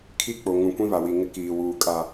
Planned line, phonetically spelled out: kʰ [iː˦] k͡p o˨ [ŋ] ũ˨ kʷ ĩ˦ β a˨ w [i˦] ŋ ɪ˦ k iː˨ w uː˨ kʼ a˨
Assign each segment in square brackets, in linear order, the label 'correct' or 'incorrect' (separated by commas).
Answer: incorrect, correct, incorrect